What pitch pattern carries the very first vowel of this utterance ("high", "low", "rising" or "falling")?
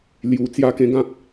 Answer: low